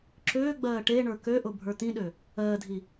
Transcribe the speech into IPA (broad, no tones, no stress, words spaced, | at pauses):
ǁøːɡ͡bɜː ʈeɳə˞ køʔʊ bʱə˞t̪ĩɗø | ɜːdʱi